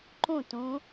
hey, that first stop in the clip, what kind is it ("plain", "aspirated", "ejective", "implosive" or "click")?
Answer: click